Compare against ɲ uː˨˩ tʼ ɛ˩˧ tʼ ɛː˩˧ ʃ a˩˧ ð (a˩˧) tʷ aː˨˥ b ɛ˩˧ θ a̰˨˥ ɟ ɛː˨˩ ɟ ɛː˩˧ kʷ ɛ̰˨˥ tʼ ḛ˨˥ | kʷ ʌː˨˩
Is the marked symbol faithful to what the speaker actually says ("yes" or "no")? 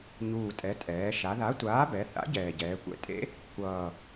no